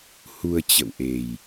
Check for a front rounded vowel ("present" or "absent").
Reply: absent